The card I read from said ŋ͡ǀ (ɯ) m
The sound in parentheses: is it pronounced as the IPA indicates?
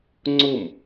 no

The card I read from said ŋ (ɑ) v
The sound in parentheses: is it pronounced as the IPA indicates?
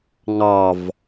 yes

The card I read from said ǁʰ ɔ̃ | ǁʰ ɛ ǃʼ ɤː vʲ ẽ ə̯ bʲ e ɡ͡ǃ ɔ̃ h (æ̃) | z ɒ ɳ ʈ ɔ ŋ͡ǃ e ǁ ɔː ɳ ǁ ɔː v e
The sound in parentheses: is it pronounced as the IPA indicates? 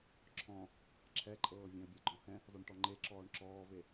no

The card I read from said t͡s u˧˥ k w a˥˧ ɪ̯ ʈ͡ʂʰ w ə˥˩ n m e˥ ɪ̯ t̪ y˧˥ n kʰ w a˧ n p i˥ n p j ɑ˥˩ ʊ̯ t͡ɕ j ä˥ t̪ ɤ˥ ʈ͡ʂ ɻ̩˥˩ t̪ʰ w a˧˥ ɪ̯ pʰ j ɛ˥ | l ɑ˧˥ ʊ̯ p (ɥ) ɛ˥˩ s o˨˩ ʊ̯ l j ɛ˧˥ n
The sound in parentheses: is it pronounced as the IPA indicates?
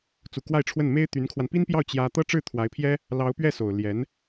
yes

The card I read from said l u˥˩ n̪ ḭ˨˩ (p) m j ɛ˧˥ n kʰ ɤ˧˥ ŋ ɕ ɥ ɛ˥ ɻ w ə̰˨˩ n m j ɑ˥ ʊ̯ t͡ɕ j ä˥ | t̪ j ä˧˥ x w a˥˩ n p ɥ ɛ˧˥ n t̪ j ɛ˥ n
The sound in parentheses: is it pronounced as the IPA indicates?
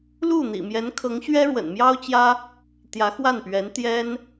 no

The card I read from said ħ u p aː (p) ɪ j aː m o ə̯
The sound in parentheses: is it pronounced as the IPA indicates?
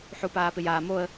yes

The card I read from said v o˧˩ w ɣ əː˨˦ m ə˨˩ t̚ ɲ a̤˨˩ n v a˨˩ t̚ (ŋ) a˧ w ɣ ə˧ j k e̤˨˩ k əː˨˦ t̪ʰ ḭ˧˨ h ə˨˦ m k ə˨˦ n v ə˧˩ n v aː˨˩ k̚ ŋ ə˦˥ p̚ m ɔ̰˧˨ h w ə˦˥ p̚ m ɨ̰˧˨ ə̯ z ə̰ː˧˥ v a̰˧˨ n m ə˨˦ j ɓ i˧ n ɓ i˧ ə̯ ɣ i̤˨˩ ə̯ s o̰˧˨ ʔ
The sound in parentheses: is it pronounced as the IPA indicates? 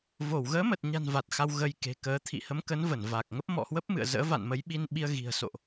no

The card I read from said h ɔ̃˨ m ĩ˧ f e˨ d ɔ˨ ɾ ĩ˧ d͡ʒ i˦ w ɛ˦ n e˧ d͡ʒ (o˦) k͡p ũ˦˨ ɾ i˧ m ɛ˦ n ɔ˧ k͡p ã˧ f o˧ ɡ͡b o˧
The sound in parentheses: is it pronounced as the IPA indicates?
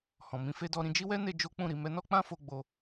yes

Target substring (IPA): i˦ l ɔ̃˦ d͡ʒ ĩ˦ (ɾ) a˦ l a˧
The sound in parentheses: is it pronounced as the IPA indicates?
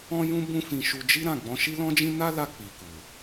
no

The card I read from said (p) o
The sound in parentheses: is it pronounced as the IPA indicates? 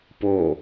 yes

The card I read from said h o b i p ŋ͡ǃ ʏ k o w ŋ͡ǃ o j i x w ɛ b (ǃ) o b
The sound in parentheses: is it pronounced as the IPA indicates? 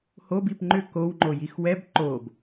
yes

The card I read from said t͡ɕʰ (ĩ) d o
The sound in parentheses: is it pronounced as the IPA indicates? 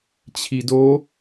no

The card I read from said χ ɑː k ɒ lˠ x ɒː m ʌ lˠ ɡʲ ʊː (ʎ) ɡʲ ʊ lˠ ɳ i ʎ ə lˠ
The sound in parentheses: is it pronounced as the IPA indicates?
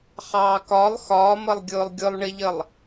no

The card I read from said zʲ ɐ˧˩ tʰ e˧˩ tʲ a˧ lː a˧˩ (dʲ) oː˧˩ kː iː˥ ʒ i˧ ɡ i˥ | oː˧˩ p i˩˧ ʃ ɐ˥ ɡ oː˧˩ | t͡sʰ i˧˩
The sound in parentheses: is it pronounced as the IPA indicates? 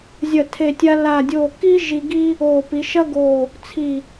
yes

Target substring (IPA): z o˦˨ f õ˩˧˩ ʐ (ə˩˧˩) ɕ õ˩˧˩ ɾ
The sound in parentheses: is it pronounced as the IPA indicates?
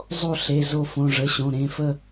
yes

